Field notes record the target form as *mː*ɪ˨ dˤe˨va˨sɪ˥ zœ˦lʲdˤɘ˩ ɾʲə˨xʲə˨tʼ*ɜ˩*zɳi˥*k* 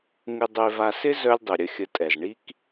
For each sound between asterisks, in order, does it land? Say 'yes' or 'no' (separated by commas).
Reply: no, no, yes